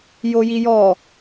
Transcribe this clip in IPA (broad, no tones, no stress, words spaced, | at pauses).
jojijɔ